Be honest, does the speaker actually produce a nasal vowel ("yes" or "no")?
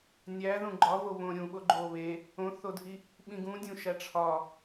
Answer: yes